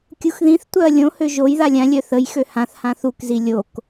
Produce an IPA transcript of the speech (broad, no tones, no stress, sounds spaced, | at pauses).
kʲ u x ð ĩ θ tʷ œ ɐ̯ lʲ õ h ø ʒ o j ð a lʲ ã lʲ œ θ ə j x ø h ã θ h ã θ u k z i lʲ o k